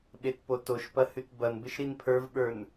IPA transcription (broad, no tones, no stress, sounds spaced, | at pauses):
ɓ e t p o t o ʃ p ɐ h ʉ t b ɐ n b ɪ ʃ ɾ i n pʰ ə˞ v ɓ ə˞ n